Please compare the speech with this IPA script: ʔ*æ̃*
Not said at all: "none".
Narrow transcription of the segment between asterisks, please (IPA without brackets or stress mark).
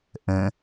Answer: ə̃